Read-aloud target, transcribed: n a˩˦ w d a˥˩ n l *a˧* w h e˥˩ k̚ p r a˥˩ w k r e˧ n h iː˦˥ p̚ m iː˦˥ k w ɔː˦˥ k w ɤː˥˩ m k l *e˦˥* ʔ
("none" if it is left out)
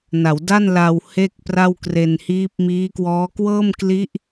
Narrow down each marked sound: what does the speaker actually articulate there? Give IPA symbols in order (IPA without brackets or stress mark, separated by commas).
a˧, i˦˥